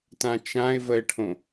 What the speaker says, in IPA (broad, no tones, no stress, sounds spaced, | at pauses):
t ã t͡ʃ ã ɪ̯ v ə ɪ̯ ʈʰ õ